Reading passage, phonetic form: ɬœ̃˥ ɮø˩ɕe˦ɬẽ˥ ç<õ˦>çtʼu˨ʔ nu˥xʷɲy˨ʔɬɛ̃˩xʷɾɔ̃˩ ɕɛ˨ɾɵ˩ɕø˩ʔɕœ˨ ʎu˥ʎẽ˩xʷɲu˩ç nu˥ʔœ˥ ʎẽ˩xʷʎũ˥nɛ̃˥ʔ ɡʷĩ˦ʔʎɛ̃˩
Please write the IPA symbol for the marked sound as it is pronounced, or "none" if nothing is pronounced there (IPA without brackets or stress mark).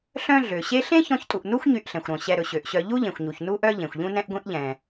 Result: ɔ̃˦